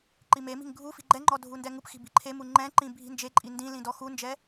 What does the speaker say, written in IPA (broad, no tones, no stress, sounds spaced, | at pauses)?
ǃ i m e m i̤ ŋ ɡʱ u f i̤ ɡ͡ǃ ɛ ŋ͡ǃ ɔ dʱ u n d ɛ ŋ u p x i̤ b i̤ ǃʰ e m u ŋ͡ǃ ɛ̃ ǃ ĩ bʱ i̤ n d͡ʒ e ǃʼ i n d ĩ l ĩ d ɔ x u n d͡ʒ ɛ